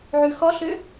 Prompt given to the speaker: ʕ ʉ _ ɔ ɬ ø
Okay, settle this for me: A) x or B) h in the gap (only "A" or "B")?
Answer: A